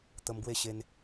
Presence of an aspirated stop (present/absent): absent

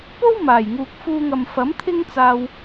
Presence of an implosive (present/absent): absent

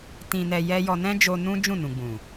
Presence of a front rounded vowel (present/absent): absent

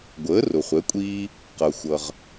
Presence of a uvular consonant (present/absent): present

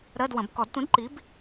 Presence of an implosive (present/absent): absent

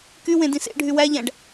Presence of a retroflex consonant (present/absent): present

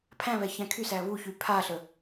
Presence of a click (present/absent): absent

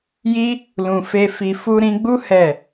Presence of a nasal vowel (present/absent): present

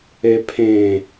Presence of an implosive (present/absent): absent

